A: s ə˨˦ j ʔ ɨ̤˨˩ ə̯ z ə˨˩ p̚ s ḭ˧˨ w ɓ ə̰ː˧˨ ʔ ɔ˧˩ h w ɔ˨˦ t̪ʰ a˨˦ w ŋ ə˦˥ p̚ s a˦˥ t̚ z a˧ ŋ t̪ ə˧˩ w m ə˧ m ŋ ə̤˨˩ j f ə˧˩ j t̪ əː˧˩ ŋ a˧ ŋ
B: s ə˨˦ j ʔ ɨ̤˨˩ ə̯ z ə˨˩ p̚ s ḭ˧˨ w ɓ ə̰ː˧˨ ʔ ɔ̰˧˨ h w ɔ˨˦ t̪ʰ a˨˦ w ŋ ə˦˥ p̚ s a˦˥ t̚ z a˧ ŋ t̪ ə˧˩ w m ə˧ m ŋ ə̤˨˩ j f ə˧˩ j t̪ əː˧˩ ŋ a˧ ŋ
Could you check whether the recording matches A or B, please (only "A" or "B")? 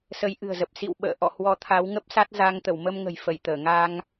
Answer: B